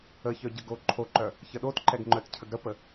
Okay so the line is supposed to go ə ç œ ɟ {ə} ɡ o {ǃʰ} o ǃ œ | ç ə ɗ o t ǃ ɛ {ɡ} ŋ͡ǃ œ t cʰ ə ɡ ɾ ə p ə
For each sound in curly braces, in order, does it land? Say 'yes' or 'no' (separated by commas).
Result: yes, yes, yes